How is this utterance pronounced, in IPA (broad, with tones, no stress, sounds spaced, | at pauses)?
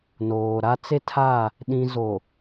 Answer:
n oː˨ ɾ a˦ t͡s e˦ tʰ a˦˨ | ɗ ĩ˦ z o˨